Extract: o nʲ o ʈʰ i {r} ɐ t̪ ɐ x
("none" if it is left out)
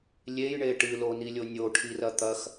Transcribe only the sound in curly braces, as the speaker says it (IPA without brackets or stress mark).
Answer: r